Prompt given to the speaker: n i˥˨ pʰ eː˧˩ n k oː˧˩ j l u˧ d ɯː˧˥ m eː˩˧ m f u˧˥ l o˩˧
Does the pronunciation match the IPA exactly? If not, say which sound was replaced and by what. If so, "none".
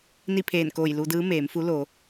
none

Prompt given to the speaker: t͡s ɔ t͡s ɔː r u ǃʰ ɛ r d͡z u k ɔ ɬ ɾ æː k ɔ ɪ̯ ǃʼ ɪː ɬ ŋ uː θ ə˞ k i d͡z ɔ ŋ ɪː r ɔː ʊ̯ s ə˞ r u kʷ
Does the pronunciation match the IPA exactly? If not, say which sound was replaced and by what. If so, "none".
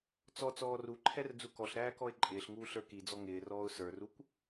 θ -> ɬ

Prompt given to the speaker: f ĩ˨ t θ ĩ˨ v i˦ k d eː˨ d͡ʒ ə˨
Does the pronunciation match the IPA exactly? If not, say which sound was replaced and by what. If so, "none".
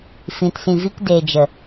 θ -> s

